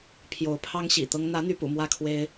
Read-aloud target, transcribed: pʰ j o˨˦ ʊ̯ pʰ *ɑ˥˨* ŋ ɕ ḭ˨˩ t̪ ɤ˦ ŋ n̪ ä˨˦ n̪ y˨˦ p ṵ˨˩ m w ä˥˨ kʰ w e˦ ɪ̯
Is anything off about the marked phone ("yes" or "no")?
yes